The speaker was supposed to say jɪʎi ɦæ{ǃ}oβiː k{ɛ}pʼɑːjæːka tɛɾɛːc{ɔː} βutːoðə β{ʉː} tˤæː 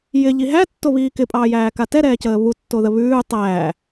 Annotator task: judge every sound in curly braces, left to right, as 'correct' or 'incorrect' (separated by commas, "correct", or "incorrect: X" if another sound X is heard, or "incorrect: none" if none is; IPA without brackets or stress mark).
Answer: incorrect: tː, incorrect: ɪ, incorrect: əː, correct